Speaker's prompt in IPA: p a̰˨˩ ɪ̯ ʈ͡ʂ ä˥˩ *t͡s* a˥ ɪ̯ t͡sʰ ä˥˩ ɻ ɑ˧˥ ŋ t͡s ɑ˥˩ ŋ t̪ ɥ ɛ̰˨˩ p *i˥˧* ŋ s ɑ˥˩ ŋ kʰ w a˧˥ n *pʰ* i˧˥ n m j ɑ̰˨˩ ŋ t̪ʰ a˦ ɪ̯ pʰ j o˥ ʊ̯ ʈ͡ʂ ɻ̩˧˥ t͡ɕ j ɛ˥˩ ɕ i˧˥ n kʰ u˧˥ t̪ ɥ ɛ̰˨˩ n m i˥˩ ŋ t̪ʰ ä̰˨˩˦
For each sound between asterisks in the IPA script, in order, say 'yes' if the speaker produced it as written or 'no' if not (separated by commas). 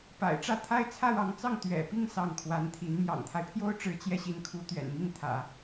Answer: no, yes, no